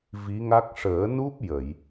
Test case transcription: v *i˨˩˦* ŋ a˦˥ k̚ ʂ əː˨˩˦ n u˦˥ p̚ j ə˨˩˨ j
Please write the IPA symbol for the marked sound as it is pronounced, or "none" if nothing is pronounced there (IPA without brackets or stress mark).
i˧˥